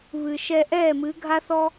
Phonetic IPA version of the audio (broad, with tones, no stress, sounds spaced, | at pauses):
β ɨ˨ ʃ ɛ˧ ʔ ɛː˦˨ m ɨ˨˦ ɡʱ a˦ θ ɔ˦